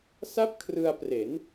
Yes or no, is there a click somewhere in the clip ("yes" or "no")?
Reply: no